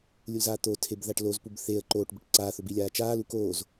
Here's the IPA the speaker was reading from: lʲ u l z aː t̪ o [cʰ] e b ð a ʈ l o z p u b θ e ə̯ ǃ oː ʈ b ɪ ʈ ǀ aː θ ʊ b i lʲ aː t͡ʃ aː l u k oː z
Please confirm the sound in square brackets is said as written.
no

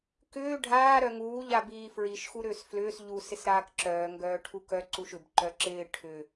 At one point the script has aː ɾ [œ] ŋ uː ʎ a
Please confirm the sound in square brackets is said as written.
yes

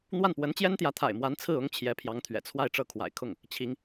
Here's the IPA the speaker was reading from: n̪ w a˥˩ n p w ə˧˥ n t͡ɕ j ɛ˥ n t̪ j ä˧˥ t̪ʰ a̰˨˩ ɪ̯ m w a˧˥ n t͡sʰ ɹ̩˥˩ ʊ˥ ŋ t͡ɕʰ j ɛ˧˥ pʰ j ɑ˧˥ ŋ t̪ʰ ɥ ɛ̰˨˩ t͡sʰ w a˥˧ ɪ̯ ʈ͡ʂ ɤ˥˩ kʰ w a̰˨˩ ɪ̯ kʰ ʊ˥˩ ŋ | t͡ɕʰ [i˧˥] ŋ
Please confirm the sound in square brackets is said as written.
yes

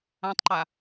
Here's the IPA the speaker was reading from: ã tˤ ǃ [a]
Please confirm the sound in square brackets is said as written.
yes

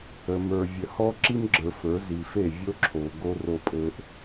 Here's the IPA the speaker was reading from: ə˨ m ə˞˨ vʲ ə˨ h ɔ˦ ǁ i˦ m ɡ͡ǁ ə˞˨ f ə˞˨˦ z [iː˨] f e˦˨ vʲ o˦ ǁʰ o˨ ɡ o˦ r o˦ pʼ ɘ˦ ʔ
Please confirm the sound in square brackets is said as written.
no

